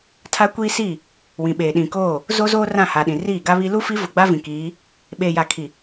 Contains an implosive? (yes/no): yes